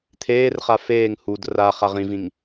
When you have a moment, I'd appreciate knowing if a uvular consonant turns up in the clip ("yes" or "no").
yes